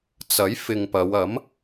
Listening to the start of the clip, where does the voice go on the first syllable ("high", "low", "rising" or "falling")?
rising